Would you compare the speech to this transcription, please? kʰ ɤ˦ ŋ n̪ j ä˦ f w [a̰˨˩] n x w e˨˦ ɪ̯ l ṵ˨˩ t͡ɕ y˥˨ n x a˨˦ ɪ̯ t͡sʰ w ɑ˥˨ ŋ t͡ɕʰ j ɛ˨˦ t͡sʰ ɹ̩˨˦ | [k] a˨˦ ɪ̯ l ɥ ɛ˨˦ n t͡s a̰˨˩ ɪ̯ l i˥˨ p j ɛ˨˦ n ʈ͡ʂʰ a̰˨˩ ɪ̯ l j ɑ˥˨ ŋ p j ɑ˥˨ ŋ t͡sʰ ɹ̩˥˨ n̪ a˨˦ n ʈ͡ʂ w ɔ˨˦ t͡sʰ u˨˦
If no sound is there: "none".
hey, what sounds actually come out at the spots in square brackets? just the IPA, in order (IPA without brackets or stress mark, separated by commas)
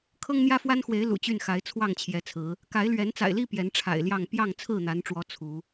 a˦, k